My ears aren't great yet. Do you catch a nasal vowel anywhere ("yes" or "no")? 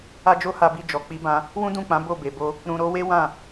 yes